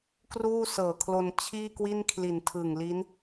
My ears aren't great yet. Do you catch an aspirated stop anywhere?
yes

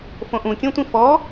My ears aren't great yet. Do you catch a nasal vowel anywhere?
yes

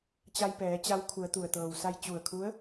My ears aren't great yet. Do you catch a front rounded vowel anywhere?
no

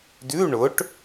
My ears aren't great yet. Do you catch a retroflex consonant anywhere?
yes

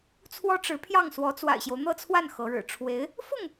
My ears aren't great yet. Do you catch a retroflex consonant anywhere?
yes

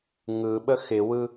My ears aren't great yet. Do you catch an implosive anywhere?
yes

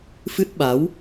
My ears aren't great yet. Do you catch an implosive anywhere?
yes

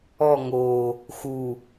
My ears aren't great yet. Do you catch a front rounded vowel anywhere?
no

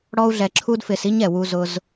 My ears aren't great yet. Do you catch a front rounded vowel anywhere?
no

